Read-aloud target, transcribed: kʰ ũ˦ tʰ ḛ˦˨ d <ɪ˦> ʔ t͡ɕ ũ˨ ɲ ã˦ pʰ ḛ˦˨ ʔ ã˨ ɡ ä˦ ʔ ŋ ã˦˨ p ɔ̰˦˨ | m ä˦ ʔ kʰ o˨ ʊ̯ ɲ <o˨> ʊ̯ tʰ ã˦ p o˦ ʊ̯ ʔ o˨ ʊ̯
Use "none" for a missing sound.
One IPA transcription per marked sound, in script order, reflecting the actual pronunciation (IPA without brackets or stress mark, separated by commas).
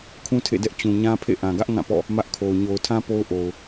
ɛ˦, o˨